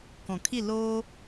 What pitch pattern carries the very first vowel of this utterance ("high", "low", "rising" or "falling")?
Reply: low